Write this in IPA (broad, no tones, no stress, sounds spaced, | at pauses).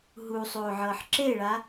ɦ u sˤ oː ʕ ɤː ħ ǁ e ɭ a